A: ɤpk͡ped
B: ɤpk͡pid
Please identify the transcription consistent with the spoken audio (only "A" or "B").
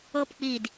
B